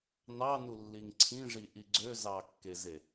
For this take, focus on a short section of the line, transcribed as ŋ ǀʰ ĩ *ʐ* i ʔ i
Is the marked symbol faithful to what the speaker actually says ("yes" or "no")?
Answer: yes